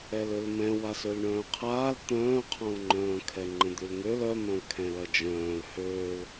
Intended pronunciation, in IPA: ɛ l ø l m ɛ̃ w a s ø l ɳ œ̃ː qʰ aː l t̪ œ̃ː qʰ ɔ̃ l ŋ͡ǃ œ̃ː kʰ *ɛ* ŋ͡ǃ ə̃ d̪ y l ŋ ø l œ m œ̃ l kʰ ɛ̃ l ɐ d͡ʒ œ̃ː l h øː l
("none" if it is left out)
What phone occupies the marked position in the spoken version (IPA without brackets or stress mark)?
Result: ɛ